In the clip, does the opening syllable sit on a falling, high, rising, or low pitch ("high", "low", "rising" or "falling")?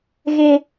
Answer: high